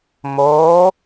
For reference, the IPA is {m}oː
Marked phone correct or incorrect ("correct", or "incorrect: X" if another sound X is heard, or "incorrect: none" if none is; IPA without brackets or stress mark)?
correct